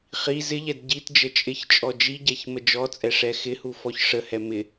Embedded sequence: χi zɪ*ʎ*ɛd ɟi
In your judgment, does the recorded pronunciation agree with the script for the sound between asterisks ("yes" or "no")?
yes